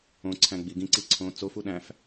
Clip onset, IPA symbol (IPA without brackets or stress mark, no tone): õ